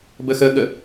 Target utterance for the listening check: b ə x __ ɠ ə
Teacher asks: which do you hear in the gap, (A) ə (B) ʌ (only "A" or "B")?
A